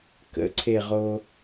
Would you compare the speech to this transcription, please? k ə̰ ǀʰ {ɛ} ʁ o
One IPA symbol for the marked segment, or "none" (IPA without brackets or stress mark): e